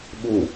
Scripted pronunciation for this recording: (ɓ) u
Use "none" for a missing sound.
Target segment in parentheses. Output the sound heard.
ɓ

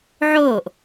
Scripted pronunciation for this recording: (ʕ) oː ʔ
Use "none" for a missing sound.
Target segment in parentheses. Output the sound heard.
ʕ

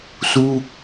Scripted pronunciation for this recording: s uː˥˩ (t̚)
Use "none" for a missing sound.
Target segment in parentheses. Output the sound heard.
k̚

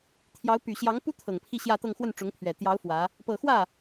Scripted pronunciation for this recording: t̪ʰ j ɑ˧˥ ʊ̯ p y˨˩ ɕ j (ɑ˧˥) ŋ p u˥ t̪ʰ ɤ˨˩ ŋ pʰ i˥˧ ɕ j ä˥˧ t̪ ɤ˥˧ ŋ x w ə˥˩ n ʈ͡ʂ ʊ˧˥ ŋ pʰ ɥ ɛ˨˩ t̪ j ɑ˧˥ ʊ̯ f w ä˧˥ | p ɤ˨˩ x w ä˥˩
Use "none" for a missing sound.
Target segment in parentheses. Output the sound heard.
ɑ˧˥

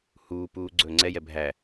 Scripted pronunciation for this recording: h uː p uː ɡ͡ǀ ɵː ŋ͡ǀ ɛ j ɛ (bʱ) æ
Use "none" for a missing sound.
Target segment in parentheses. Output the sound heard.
bʱ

